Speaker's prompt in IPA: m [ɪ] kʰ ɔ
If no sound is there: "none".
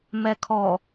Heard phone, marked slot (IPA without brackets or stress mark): ɛ